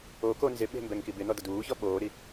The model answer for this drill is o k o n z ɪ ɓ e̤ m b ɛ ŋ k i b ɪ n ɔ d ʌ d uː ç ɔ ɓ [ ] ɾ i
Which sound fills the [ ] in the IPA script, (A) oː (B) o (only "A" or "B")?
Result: A